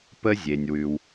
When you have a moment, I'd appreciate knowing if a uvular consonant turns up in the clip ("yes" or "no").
no